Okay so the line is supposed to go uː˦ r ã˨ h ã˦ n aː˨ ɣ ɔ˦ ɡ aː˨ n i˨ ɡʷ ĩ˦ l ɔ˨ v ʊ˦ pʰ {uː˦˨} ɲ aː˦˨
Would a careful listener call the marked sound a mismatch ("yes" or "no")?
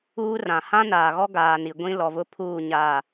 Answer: no